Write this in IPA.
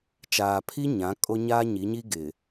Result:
t͡ʃaː˨pʰi˦ ɲã˨˦ kʼo˦ɲaː˦ɲi˨˦ɲi˦ ɡɪ˨

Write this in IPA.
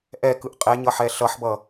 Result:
ʔɛkɯʔ qʼɛɲʌħɛ ɬʌħbʌ

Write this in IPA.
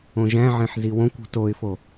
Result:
õʒæ̃ʕẽħ ziwõkʷṳ toɪ̯fo

